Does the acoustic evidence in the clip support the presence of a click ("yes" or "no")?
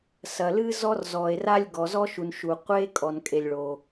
no